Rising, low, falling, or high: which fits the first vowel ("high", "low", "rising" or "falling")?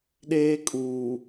high